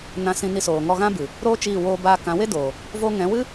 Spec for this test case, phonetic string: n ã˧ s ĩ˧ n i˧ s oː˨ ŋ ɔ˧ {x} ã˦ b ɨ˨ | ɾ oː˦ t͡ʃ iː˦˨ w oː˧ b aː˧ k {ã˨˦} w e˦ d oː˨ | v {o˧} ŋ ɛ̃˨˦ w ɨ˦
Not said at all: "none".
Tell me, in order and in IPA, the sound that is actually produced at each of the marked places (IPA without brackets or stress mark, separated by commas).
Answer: ɣ, ã˨˦, o˧